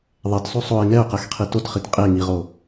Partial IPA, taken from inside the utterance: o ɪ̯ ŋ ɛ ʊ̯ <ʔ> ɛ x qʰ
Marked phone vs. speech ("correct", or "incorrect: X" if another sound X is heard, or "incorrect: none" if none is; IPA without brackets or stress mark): incorrect: q